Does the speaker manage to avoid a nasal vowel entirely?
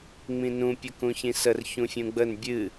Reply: no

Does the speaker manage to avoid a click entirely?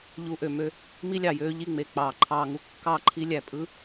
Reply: no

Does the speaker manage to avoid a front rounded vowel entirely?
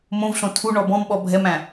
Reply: yes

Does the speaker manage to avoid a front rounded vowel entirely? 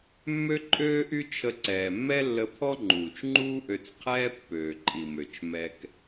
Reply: no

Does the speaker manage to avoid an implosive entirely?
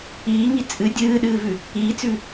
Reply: no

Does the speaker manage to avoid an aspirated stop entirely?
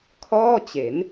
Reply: no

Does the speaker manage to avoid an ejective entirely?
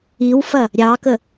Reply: yes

